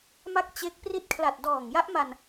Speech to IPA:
ma˦˥k̚ t͡ɕe˦˥k̚pri˥˩t̚ kʰla˨˩t̚dɔː˨˩ŋja˦˥ʔma˧n

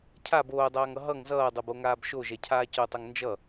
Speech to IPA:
cʰab oːdˤaːŋʌ ɦʌŋ zʌːdˤoboŋaːb ʃoʒɛcʰaː cotˤʌŋ nd͡ʒʌ

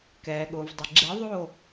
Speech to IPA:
kɛː˨ɠʊː˨vdˤi˨ ɡ͡ǁɛ˧˥ðˤoː˥˧

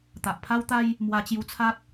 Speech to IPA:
t̪a˨ʔpʰa˦wt̪a˦j | mwa˧t͡ɕju˧t͡sʰa˦t̚

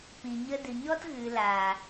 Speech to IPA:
pĩ˨ ɲə˧ dɨ˨ɲɔ˦t ɣɨ˨laː˨

